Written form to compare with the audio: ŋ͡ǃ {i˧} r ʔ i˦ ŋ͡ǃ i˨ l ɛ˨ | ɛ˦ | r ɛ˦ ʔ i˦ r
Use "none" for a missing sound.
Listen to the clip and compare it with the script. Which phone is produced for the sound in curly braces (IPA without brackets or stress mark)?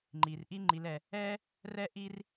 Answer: i˨